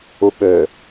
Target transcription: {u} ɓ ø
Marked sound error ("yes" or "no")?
no